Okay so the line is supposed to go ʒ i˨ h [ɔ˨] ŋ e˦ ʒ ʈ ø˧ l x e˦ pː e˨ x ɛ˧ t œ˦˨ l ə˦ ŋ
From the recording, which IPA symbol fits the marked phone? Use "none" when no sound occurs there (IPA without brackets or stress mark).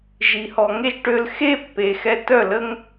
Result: ɔ˨